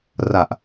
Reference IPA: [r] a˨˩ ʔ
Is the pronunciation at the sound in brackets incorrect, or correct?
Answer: correct